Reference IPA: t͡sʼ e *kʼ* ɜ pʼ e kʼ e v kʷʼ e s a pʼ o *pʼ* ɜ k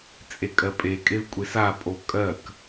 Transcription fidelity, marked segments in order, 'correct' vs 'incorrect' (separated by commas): correct, incorrect